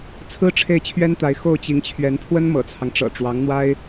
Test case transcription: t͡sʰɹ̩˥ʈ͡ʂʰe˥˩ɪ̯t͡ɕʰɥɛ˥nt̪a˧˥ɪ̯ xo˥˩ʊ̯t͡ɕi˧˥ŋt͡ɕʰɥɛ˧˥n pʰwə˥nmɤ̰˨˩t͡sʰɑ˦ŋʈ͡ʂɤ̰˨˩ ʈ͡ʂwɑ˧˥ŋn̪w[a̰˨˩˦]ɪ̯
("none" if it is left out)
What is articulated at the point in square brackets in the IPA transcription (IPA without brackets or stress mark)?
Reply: a˥